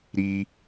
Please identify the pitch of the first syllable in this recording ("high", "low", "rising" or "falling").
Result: high